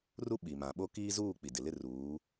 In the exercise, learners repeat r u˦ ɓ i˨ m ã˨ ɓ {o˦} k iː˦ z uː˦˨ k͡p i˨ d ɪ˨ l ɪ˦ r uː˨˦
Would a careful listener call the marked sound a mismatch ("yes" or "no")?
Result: no